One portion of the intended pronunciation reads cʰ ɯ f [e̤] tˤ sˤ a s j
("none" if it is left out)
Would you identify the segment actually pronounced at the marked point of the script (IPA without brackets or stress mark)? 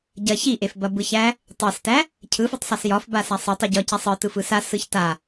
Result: e